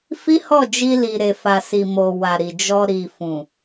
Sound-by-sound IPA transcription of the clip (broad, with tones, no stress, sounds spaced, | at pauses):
f i˦ h ɔ˦˨ d͡ʒ i˧ l i˨ ɾ e˨ f a˨ s i˨ m o˨ w a˨ ɾ i˨ d͡ʒ ɔ˧ ɾ i˨ f ũ˨